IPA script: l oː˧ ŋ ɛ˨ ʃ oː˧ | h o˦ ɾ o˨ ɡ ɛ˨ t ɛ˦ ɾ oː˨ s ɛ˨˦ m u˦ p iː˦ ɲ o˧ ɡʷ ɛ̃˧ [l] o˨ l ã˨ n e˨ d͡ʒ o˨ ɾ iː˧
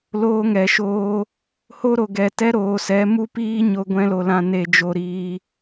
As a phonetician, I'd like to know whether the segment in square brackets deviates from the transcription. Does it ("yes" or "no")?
no